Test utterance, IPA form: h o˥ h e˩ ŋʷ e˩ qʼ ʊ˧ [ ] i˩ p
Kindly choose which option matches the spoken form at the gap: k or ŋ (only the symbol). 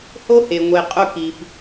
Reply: k